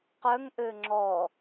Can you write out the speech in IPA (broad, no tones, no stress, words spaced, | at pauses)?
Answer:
qœŋʔø ŋ͡ǁɔ